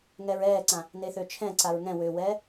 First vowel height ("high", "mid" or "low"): mid